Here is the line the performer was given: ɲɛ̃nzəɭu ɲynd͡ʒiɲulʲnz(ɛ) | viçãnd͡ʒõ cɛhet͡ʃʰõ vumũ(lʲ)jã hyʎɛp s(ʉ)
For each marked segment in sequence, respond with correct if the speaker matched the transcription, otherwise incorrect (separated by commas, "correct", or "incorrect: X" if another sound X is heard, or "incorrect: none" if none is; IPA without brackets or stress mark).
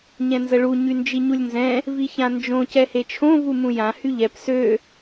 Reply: incorrect: ɛ̃, incorrect: none, incorrect: ø